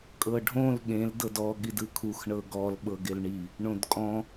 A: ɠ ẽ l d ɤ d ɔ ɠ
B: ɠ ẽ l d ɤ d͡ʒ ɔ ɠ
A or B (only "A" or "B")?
A